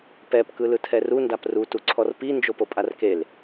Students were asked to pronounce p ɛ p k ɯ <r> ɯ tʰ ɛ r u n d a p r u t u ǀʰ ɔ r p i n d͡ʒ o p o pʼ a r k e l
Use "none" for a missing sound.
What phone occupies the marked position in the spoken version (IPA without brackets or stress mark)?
l